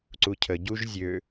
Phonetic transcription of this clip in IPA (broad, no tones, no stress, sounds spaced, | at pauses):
ǀ u cʰ ə ɟ u ʒ zʲ ø